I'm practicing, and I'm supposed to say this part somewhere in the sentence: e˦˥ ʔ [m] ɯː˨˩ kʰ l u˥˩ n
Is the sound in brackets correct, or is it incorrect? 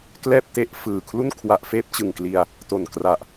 incorrect